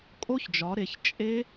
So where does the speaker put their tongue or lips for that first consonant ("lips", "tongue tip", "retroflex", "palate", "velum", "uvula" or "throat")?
velum